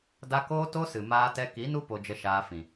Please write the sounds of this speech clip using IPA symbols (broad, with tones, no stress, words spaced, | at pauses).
da˧ koː˦to˦sɨ˨ maː˧tɛ˧ ki˨˦nu˦ po˧d͡ʒə˧ʃaː˧fĩ˨